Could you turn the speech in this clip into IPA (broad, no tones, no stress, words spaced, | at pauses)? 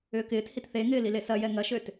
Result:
ʏːkɪːt hitθeŋɪː lilesɐjɛ ŋɐʃøt